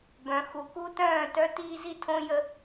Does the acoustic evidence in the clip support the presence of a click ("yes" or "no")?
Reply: no